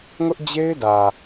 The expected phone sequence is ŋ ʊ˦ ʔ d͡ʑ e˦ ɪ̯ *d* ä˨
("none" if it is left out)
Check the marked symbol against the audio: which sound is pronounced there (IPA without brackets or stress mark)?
d